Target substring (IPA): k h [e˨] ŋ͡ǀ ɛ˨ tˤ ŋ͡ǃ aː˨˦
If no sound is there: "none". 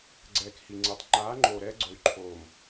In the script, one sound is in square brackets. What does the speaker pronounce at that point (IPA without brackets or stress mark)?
i˨